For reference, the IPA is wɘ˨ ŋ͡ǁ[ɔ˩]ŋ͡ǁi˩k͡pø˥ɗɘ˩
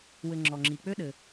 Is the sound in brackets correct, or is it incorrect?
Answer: correct